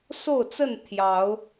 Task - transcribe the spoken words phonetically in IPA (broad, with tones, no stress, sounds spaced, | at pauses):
s o˥˨ ʊ̯ t͡s ə˥˨ n t̪ʰ j ɑ˨˦ ʊ̯